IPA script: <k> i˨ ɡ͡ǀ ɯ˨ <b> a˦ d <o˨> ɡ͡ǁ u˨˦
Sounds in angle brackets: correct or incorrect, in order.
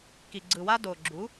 correct, incorrect, correct

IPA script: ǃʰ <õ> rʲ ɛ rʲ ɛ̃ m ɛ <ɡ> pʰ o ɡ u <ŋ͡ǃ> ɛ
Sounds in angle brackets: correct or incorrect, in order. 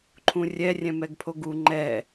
incorrect, correct, correct

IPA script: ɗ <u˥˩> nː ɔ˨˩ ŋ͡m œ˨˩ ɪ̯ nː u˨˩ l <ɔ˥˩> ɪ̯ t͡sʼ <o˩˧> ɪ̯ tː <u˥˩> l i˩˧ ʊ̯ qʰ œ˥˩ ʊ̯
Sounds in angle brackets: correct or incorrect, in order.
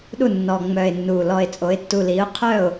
correct, incorrect, correct, incorrect

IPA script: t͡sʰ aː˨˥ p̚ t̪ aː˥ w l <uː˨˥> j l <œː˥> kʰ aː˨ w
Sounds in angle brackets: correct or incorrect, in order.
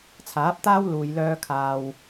incorrect, incorrect

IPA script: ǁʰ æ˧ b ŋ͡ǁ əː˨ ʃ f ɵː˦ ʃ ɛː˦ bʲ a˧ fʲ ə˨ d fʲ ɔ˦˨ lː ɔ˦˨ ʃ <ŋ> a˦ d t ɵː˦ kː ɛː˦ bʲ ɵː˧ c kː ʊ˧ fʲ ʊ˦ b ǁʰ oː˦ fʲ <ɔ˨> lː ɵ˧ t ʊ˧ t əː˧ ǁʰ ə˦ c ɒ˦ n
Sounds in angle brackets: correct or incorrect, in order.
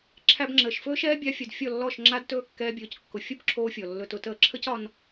incorrect, correct

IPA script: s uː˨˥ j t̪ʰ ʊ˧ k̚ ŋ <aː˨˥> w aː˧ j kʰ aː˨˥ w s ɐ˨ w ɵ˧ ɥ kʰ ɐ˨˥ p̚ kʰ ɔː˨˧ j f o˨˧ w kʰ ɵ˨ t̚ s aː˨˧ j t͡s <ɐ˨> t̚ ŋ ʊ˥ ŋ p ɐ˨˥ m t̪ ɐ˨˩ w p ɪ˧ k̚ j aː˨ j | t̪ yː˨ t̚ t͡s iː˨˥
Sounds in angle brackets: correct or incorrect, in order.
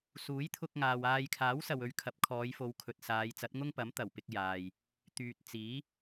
incorrect, incorrect

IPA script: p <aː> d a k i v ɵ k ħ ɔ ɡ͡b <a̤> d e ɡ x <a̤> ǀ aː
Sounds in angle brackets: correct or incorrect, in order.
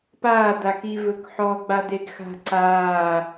correct, incorrect, correct

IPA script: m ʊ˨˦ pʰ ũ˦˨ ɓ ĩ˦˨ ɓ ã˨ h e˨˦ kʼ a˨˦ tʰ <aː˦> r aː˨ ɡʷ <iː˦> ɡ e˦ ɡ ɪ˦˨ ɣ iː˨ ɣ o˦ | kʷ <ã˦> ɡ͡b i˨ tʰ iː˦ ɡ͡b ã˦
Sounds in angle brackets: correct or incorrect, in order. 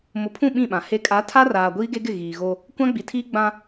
incorrect, correct, correct

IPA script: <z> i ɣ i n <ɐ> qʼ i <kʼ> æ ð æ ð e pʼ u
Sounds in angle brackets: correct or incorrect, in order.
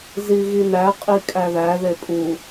correct, incorrect, correct

